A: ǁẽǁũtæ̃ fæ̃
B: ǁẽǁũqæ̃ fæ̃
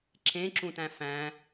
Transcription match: A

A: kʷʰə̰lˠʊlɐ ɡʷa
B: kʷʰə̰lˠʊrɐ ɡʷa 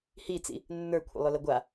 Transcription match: A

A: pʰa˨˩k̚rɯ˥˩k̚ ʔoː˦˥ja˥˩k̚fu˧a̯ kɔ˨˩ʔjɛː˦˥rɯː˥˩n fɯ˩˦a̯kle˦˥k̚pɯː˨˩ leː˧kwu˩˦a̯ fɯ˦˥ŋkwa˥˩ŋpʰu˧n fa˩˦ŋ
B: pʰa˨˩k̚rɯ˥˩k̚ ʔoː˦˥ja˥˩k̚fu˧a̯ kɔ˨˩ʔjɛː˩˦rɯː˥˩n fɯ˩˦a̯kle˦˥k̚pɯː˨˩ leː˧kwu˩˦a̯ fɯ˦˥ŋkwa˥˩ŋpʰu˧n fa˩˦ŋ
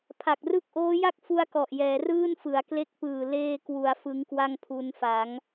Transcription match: B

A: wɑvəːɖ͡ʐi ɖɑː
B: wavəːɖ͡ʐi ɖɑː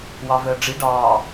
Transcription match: A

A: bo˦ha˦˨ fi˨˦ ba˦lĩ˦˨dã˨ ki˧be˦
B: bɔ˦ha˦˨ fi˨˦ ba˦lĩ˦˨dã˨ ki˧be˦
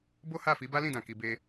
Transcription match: A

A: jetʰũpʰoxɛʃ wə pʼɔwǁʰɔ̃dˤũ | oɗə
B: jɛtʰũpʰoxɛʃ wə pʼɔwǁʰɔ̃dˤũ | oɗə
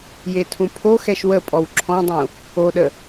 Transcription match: A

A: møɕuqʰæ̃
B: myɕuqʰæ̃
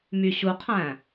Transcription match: B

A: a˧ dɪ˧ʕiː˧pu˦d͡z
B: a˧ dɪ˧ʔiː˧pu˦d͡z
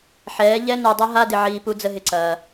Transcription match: A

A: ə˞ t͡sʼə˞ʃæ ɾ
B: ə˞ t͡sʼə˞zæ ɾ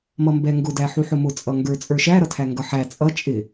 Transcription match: A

